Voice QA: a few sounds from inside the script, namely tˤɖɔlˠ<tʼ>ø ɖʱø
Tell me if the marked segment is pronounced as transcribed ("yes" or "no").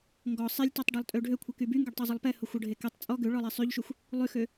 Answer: yes